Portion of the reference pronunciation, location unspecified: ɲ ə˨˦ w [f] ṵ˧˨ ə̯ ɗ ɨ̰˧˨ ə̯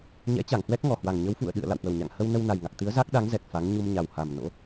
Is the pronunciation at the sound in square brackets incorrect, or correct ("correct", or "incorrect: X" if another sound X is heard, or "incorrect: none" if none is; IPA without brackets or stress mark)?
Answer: correct